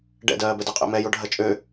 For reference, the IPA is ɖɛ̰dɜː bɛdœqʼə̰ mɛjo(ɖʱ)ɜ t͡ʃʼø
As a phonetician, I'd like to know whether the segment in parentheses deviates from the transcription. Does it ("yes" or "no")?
no